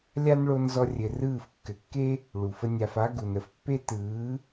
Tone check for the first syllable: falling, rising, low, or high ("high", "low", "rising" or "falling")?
high